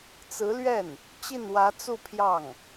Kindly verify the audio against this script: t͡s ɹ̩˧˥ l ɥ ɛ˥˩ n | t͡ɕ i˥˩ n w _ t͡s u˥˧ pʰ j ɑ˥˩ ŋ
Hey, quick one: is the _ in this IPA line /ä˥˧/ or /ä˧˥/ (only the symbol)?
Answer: ä˧˥